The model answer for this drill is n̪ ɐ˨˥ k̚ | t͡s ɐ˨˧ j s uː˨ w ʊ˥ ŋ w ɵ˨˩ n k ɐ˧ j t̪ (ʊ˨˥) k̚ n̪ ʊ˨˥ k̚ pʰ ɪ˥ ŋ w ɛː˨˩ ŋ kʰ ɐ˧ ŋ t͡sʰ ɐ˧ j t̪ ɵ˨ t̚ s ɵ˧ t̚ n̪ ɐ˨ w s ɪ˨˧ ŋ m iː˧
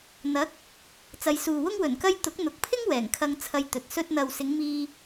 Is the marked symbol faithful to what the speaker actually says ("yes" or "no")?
yes